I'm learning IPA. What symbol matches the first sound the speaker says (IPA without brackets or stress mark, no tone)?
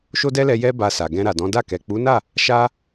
ʃ